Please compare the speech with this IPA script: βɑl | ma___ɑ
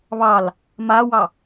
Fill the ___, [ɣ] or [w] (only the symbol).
w